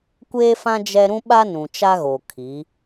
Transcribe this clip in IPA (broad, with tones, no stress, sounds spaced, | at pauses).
kʷ eː˦ f ã˦ d͡ʒ ɛ˦ ɾ ũ˦ ɓ a˦ n ũ˨ t͡ʃ a˦ ɣ o˨ kʰ i˨˦